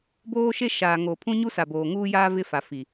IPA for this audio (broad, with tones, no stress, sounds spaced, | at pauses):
b oː˦ ʃ e˦ ʃ aː˨ ŋ oː˨ pʰ ũ˦ ɲ u˦ s a˨ b oː˨ ŋ uː˦ j aː˦ v ɪ˦ f a˨ f i˨